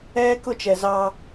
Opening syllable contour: high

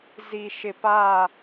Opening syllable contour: low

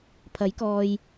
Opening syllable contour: rising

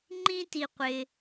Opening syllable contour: high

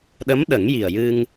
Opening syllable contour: rising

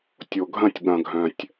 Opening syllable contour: low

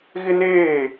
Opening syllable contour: high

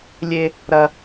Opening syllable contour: high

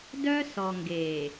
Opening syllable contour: high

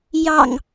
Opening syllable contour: low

